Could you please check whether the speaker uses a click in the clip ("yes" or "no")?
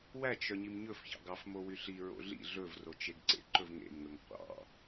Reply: yes